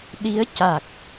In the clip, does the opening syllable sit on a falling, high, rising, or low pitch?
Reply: rising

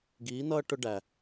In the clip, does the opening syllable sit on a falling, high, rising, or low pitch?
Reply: rising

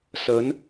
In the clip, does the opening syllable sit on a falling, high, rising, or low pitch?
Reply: rising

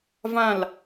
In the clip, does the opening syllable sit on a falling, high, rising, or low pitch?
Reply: falling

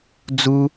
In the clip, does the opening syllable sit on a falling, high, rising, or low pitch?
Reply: high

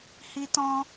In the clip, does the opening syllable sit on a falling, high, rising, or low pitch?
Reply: high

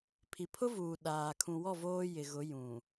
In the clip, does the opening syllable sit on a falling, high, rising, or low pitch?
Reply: low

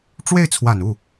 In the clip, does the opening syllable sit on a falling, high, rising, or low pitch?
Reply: falling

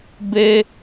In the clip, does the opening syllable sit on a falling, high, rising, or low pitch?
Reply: high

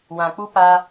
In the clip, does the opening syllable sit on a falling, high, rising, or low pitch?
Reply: low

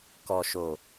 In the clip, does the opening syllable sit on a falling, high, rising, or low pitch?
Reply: low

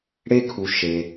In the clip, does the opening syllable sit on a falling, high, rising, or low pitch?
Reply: high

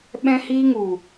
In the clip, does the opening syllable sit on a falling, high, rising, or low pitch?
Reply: high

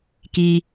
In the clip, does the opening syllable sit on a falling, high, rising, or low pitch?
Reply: low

